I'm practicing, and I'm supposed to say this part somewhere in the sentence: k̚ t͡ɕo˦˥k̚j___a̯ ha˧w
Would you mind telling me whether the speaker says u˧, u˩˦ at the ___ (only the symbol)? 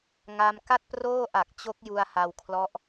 u˧